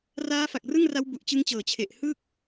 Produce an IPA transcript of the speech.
r aː˦˥ f a˨˩ k̚ r ɯ˥˩ ŋ r a˦˥ w b u˨˩ ʔ t͡ɕ ɯ˦˥ ŋ t͡ɕ ɤː˨˩ t͡ɕʰ e˨˩ ʔ h ɯː˥˩ k̚

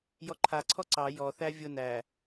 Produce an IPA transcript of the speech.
j ɔ ǃʰ a ǀʰ ɔ ǀ ɑ j ɔ θ æ vʲ ʊ n æ

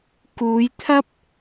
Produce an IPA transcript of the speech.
k uː˨˧ j t̪ʰ ɐ˥ p̚

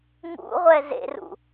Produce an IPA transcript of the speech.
ŋ ṵ ʁʷ ɛ z ḛ r ṵ

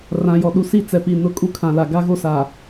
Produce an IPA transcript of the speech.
r ã˨ j ɔ˨ ɗ u˨ s i˦˨ t͡s ɛ˨ p i˨ n ʊ˦ kʼ u˦ kʰ ã˨ l a˨ ɡ a˦ ɣ o˦ s a˨

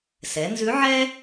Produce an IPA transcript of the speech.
s ɛ˩˧ n z ʉ˧˥ ʕ ɛ˥

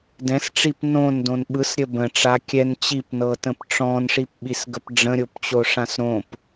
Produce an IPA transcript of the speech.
d ɛ̃ s ʈ͡ʂ i p n õ n d õ n ɓ ɯ s ɾʲ ə b ə̃ ʈ͡ʂ a kʲ ɛ n t͡ɕ i p n ɤ t ə̃ p ʈ͡ʂ ɔ̃ n ʂ i p ɓ i s ɡ ə p ɖ͡ʐ ə̃ ɾʲ o p t͡ɕ o ʂ ã s ɾ õ p

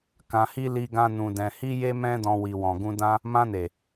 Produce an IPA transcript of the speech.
k ã˧ h i˦ l i˦ ɡ ã˦ n ũ˧ d ɛ̃˧ h i˦ j e˦ m ɛ̃˦ d ɔ̃˧ w i˨ w ɔ̃˨ ɡ ũ˧ d ã˦ | m ã˧ n e˨

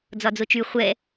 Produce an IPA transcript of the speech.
d͡z ɒ d͡z o t͡ʃ y χʷ ɛ

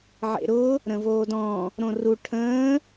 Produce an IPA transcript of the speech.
ʕ ḛ ɾ ʊ | ɾ ə̃ v oː d ɔ̃ | ɾ õ r u ʈʰ ə̃ː

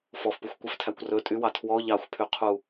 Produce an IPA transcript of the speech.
f ɔ f p u xʷ kʷ e f tʰ æ kʷ r ɵ tʼ y w ɑ tʰ w ɔ ʎ ɑ xʷ pʰ y qʰ u

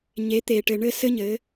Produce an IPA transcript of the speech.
ɲ e˨˦ t̪ eː˨ ʈ ɘ˨ ɳ ɘ˦˨ s ɘ˦ ɲ ɘː˨˦

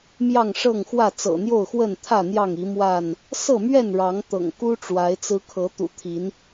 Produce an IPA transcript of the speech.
m j ɑ˥˨ ŋ ʂ ɤ˥˨ ŋ x w ä˥˨ t͡s ɤ̰˨˩ n̪ j o˥˨ ʊ̯ x w ə˥˨ n t̪ʰ ä˥˨ n̪ j ɑ˥˨ ŋ i˨˦ m w a˥˨ n | s ɤ˥˨ m ɥ ɛ˥˨ n ɻ ɑ˨˦ ŋ t̪ ɤ̰˨˩ ŋ k u˦ ʈ͡ʂ w a˨˦ ɪ̯ t͡s ɹ̩˦ kʰ ɤ˨˦ t̪ ṵ˨˩ t̪ʰ i˨˦ n

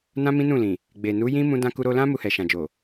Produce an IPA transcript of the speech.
n ã˦ m ĩ˦ n ũ˦˨ l ĩ˨ | ɡ͡b e˨ n u˨˦ j ĩ˦ m ũ˧ d ã˧ k u˧ ɾ o˧ l ã˦ m u˧ h ɛ˨ ʃ ã˨ d͡ʒ o˨

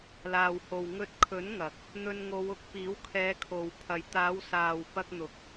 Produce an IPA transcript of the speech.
l aː˨ w h o˨ w ŋ ɵ˧ t̚ kʰ ɵ˨˥ n ŋ ɐ˨ k̚ | n̪ ɵ˧ n ŋ o˨˧ w ʊ˨˥ k̚ p iː˨˥ w kʰ ɛː˨˧ kʰ o˨ w pʰ ɐ˨ j t̪ aː˨˧ w s aː˨ w p ɐ˧ k̚ n̪ ʊ˨ k̚

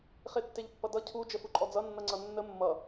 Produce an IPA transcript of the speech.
χ e tː e ʎ pː ʌ d ʌ cʰ u d͡ʒ ə f u ǃʼ ɔ d͡z ʌ nː ʌ ŋ͡ǀ ʌ nː ə mː ʌ

